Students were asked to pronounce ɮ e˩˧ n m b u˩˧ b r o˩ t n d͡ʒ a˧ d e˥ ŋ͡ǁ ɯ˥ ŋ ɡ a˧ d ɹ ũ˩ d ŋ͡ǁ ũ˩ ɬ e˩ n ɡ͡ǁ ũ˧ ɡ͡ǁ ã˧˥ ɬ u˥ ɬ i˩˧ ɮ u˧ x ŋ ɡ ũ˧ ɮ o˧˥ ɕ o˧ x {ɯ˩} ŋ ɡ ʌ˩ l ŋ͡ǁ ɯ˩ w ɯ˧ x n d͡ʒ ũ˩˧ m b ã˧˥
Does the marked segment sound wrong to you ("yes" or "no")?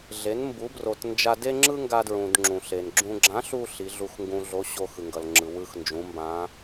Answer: no